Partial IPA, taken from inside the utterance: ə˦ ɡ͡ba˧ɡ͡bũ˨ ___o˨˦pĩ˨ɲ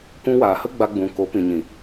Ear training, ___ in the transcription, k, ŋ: k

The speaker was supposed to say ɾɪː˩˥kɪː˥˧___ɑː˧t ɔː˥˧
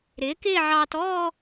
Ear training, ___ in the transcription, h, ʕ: ʕ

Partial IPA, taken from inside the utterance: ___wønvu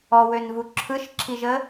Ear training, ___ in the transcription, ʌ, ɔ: ɔ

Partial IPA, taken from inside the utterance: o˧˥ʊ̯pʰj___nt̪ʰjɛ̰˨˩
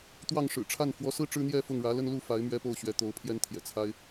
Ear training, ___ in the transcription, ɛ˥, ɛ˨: ɛ˥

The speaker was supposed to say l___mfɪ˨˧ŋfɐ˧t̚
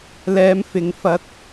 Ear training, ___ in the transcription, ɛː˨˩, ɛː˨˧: ɛː˨˧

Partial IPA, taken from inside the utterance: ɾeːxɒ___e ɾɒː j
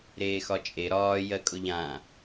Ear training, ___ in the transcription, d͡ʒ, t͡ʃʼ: t͡ʃʼ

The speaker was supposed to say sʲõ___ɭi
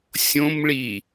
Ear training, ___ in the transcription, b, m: m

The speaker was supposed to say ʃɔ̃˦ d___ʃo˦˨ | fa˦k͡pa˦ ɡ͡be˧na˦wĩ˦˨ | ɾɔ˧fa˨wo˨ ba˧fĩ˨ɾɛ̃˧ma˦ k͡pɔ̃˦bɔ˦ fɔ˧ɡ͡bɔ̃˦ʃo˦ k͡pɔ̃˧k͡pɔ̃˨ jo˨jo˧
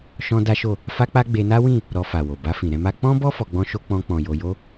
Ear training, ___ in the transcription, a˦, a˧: a˦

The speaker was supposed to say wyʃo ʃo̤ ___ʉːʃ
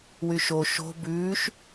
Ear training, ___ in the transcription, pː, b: b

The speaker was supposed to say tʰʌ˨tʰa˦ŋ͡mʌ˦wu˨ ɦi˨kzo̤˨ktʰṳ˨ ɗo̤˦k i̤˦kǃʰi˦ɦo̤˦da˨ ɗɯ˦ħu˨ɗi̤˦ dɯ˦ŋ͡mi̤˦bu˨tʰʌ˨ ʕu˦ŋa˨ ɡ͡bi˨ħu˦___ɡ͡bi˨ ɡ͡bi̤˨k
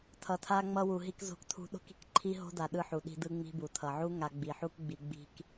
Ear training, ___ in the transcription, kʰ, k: k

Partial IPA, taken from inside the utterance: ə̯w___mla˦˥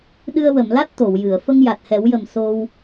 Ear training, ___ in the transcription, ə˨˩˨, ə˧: ə˨˩˨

